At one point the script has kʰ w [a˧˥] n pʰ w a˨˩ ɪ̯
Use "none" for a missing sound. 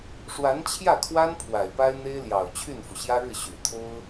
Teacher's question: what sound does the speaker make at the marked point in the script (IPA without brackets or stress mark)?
a˥